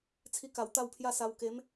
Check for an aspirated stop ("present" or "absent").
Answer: present